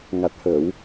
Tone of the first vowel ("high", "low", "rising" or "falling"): low